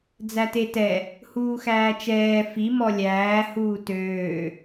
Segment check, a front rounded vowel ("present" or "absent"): present